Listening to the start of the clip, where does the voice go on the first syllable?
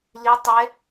rising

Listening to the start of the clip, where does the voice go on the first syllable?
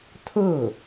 falling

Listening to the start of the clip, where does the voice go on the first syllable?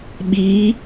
rising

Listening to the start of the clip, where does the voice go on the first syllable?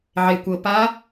low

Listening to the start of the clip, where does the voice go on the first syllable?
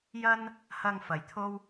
high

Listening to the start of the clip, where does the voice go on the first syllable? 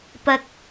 high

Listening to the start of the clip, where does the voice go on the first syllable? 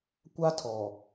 high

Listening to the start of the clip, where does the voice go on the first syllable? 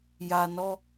low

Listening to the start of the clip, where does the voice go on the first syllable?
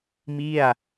falling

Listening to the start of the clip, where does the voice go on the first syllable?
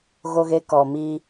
high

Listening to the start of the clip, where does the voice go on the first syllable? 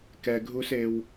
low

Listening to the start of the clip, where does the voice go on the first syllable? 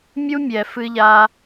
high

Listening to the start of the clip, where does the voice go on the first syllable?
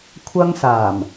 high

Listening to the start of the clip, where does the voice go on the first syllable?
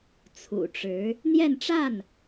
low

